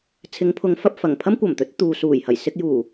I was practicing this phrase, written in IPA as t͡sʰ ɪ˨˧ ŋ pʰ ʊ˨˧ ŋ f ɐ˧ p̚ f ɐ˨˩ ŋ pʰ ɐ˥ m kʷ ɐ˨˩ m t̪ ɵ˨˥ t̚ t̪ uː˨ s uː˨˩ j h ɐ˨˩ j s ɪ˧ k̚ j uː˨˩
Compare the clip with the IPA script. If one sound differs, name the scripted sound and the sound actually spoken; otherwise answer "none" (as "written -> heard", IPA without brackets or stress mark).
none